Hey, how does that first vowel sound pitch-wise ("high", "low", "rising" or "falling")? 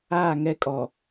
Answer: falling